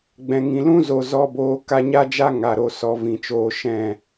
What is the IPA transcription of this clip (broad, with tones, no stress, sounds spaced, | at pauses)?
ɡ͡b ɛ̃˨ ŋ ĩ˨ l ũ˦ z o˨ z ɔ˧ b oː˧ k a˧ ɲ a˦ d͡ʒ a˦ ŋ a˨ ɾ o˧ s ɔ˧ v ĩ˨ t͡ʃ oː˧ ʃ ɛ̃˦˨